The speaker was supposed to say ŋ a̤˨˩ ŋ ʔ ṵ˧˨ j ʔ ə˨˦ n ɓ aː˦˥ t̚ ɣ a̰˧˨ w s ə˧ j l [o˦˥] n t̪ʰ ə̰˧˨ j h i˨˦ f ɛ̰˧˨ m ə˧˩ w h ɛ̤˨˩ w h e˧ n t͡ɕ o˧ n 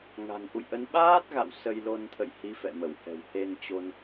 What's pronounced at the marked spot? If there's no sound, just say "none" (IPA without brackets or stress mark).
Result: o˧